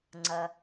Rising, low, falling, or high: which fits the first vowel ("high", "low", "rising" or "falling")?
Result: low